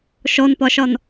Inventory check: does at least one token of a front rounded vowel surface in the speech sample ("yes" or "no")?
no